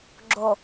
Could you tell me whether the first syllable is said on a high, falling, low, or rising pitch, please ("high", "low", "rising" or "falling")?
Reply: low